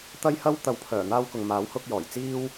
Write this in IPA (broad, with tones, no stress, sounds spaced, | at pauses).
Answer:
t̪ ɐ˥ j h ɐ˥ w t̪ ɐ˨ w pʰ œː˨˩ n̪ aː˧ w k ʊ˨ ŋ m aː˨˥ w h ʊ˧ k̚ j ɔː˨˩ j t͡s iː˥ w